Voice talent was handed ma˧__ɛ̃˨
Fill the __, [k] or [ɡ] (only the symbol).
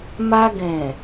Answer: ɡ